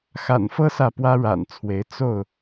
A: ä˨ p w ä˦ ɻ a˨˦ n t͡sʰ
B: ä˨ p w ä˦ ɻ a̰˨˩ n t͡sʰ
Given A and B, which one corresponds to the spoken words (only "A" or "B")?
B